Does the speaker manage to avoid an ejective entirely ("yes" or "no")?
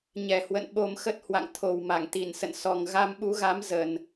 yes